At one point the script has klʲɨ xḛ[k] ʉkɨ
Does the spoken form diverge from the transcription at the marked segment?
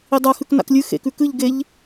no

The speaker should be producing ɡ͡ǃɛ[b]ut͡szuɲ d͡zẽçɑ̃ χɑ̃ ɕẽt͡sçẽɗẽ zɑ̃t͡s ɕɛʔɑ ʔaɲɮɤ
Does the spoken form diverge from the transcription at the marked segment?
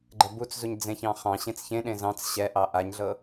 no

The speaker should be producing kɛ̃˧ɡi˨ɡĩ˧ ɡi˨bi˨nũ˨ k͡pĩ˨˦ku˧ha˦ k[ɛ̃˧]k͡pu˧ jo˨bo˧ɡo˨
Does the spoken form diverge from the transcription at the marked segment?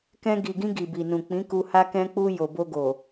no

